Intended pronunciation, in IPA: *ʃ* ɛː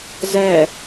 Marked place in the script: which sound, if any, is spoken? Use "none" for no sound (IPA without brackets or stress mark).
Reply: z